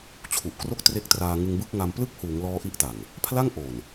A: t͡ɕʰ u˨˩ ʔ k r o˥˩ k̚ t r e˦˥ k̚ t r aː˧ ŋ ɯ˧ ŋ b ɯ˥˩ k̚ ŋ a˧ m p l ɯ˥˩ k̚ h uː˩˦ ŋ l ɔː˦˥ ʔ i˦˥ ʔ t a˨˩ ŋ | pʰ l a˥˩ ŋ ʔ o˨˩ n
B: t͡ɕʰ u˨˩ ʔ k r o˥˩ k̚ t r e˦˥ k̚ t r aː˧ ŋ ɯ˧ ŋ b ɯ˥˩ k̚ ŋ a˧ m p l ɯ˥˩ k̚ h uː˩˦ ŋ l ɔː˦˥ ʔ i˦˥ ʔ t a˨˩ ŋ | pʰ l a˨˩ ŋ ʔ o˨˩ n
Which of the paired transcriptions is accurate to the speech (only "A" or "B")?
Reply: A